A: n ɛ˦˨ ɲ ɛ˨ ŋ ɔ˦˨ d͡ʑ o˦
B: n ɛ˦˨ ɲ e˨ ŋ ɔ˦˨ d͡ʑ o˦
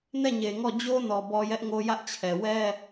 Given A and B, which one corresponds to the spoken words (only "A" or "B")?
B